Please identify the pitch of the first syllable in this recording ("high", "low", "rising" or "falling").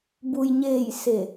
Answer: low